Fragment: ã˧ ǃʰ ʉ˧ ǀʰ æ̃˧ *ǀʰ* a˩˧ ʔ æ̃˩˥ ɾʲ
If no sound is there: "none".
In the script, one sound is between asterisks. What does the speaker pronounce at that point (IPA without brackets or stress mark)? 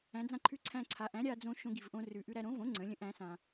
ǀʰ